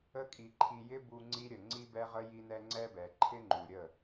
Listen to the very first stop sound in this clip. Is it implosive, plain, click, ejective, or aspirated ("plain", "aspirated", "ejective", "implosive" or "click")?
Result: ejective